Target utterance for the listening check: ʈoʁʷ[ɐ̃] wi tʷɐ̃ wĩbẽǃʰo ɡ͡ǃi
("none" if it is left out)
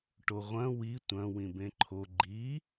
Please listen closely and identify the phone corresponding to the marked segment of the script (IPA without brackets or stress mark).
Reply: ɐ̃